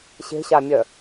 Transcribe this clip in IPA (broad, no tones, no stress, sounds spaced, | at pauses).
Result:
ɕ e̤ ɕ a mʲ œ